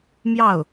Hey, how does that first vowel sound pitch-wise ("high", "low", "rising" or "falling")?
falling